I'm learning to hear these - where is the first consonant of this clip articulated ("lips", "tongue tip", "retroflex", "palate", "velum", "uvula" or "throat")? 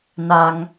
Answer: tongue tip